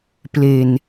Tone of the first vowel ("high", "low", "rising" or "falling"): low